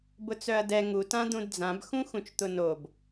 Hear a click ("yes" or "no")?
no